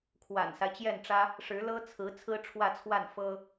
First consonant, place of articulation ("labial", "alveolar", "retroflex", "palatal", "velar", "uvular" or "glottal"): velar